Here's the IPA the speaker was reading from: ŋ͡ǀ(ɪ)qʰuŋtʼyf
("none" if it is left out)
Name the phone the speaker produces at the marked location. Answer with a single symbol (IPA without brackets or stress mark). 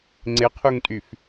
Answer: ɪ